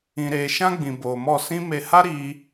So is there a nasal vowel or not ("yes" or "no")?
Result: yes